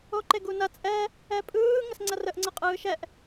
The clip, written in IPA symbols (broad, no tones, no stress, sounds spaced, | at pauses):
o ǃ e ɡ u n ɐ t͡sʼ ɛ | ɛ pʼ ɯː ŋ ə s ŋ͡ǀ ɐ r ə ʔ ŋ͡ǀ ə qʼ ɯː ʃ ɛ ʔ